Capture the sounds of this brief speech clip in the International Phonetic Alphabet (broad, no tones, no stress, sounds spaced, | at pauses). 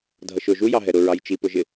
dʱ ʌ ʃ ʊ ʒ u j ɑ ɦ ɛ ɾ ʊ ɹ ɑ j t͡ʃ i p ʊ ʒ ɪ